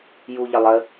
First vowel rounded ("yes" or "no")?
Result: yes